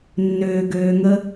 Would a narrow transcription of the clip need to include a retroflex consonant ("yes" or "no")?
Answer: no